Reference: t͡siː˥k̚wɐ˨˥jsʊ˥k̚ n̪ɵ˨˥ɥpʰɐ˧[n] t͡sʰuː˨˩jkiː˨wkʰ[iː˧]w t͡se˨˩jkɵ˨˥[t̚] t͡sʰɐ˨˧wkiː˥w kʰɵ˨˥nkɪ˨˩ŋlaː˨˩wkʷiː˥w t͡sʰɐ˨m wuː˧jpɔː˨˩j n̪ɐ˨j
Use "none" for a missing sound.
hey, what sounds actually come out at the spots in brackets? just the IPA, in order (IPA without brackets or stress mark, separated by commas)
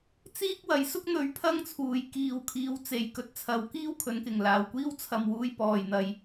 ŋ, iː˨˧, t̚